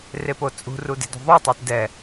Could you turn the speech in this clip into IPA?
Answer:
repot͡sʼṳ rude̤dṳðˤu tˤetdɛ

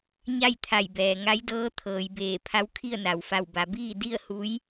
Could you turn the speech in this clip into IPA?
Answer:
ɲa˥˨jt̪ʰa˧˩jbɛː˩ ŋa˧˥jdɤː˧˥ t̪ʰɤː˩˧jbeː˧˩ pʰa˧˥wkʰi˥˨ə̯na˩w fa˧˩wba˩˧biː˥˨ di˥˨ə̯hu˧˥j

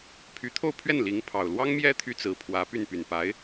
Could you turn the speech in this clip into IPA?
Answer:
pʰy˧˥t̪ʰo˥˧ʊ̯ pʰɥɛ˥˩nli˧˥ŋ pʰɑ˨˩ʊ̯ lwɑ˥ŋmjɛ˥ t̪ʰy˥t͡sɹ̩˧˥pʰwä˧˥py˥˩n py˨˩npa˧˥ɪ̯

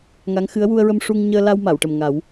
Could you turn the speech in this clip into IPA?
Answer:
ŋa˧˥ŋxɨ˧˥ə̯ wu˧ə̯ɹə˧mʂu˧ŋ ɲəː˧la˧w ma˨˩˨wʈə˨˩mŋa˨˩˦w

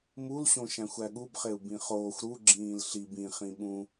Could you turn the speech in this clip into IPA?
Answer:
mulɕõʃæ̃xʷ æɠubχeu̯ bĩχoːxʷ ɾuɡ͡ǁĩːl ɬib ĩ χĩɓũ

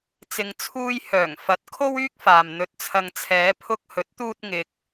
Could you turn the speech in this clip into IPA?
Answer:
t͡sɪ˨ŋt͡sʰuː˧j hœː˨˩ŋfɐ˨˥t̚ kʰo˥wyː˥k̚faː˨m n̪ɵ˧t̚t͡sʰɐ˧ŋ t͡sʰɛː˨˧ pʰʊ˧k̚ hɵ˨˥t̚t̪uː˧t̚ŋɪ˨k̚

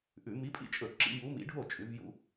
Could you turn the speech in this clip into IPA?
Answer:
ʔʉ˧˩˧ mi˨˦pʼḭ˦t͡ʃʼɵ˧˩˧ ǁḭ˦ju˨˦mḭ˨˦ɖʱo˥˩ t͡ʃʼʉ˨˦vjṵ˦

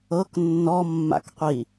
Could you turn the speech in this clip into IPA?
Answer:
ɤk nːɔmːa̰kqʷi

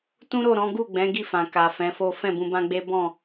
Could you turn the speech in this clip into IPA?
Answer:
tũ˦ɾo˦˨ ɾɔ̃˨˦ ɡu˦˨ɡ͡bɛ̃˨˦ ɡi˦˨fã˨ ka˨fɛ̃˨˦fo˦ fɛ̃˦˨bũ˧bã˦ɡ͡be˦ bɔ̃˦˨

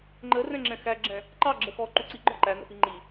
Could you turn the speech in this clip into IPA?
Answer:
ŋ͡ǃə rɛ̃ŋ͡ǁɛ̃xæɡ͡ǁɛ̃ | ǃɑɡ͡ǁə xɔ ǃuǀi ɡ͡ǃɔǃænə̰fi ŋ͡ǃi

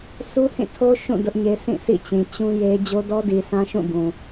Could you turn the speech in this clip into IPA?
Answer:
su˦hĩ˦˨tʰo˦ ʃũ˦˨ dʊ˦ʔɲe˦ sʰĩ˦˨sʰḭ˦˨t͡ɕĩ˨ t͡ɕũ˦je˦ d͡ʑo˦dɔ˦di˨sã˦ ʃũ˦˨bũ˨

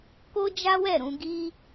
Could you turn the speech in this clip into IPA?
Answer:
ko˦d͡ʒa˦wɛ˦˨ɾũ˧ ɡi˦

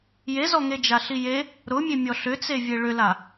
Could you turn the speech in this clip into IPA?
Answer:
jezɔŋed͡ʒa ɬije | ɾʊmʲe mʲɔɬʏt͡sevʲe ɭʏla

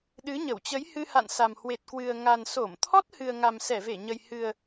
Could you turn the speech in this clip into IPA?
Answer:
ɗɨ˨˦ɲə˧˩wt͡ɕə˨˦jhɨ˧ ha̰˧˨nsa˨˩m hwe˨˩t̚kwɨ˨˩ə̯ŋa˨˩n so˧˩m t̪ʰɔ˦˥t̚hɨ˨˩ə̯ ŋa˨˩msɛ˧˩ve˧˩ɲə˨˩j hɨ˨˩ə̯

